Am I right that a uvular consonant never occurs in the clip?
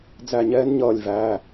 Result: yes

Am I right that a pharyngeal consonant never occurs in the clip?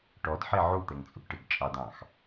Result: no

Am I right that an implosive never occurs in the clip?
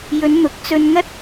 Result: yes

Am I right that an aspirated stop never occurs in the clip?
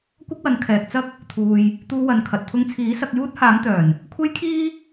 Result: no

